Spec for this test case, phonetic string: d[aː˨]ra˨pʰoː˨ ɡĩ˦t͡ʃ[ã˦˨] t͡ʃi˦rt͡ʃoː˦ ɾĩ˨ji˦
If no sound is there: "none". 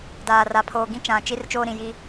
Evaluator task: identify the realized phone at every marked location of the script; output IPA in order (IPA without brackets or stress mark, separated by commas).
aː˨, ã˨